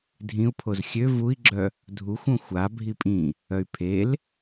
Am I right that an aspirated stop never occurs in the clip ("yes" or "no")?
no